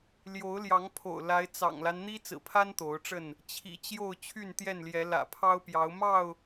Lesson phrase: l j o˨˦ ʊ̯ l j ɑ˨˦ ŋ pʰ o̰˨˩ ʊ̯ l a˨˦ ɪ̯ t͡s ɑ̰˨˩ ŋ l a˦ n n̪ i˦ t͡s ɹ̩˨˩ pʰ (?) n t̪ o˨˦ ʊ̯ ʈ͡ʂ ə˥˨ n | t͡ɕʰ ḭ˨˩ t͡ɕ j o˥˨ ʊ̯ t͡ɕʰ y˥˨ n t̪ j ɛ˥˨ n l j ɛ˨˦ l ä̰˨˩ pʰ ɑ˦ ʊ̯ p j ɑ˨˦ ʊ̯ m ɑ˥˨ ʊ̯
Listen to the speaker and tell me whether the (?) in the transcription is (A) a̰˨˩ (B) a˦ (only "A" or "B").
B